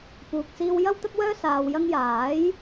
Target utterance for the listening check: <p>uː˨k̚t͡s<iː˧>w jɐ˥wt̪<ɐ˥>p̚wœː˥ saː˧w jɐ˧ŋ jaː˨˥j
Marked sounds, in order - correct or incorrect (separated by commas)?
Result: correct, correct, correct